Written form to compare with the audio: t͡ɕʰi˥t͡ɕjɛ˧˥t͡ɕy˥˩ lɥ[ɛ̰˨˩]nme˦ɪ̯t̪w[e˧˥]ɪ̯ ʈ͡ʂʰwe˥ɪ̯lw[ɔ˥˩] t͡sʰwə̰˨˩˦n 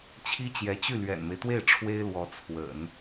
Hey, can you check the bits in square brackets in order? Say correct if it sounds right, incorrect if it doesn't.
correct, incorrect, incorrect

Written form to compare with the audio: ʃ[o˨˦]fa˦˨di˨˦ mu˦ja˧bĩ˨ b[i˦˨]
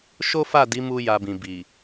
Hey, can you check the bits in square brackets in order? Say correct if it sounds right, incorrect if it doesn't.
incorrect, incorrect

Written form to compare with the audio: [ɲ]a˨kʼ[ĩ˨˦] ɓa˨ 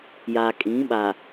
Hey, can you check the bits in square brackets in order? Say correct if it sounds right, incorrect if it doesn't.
incorrect, correct

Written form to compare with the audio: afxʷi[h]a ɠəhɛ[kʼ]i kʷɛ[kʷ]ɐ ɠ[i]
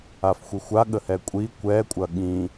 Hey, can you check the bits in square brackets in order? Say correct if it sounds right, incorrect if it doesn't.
incorrect, incorrect, incorrect, incorrect

